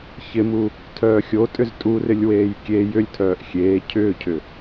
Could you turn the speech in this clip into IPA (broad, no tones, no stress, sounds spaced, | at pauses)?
ç ɪ m u | tʰ œː xʲ o tʼ ʏ z tʼ u r ɪ lʲ w eː j kʲ e j ʏ lʲ tʰ œː ʔ xʲ eː cʰ ʏː cʰ ʏ